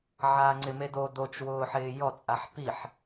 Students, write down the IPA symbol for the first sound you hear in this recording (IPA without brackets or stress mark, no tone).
ʕ